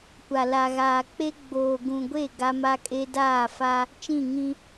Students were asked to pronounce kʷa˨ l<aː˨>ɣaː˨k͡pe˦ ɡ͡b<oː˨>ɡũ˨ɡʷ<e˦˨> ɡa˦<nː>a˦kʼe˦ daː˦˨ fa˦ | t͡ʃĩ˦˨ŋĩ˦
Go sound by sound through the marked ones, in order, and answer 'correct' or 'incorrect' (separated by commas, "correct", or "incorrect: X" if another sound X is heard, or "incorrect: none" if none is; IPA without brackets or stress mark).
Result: incorrect: a˨, correct, correct, incorrect: m